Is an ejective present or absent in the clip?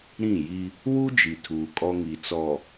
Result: present